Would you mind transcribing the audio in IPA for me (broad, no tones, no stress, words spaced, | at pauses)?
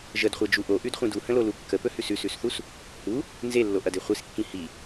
ʒədχʷed͡ʒu ʔoʔʉdχʷĩd uhə̃lolu kːəpɵhʉs ʉsʉsθus | hu | nzelːoʔɐde χʷiskːĩ hi